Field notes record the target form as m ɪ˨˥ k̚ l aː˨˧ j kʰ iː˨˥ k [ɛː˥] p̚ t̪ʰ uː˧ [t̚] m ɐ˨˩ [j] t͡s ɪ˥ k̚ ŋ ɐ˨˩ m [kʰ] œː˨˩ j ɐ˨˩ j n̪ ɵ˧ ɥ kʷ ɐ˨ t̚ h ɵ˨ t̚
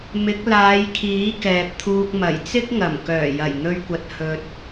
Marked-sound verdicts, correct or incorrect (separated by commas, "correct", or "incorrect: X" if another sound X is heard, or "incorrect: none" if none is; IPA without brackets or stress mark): incorrect: ɛː˨, incorrect: k̚, correct, incorrect: k